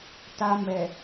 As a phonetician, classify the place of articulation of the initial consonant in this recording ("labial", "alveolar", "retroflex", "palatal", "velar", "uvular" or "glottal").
alveolar